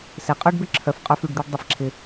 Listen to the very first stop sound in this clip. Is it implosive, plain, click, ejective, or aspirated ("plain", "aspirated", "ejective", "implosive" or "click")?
ejective